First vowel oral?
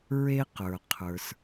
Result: yes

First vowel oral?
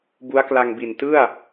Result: yes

